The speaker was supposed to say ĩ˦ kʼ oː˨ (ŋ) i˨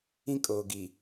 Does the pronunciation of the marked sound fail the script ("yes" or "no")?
yes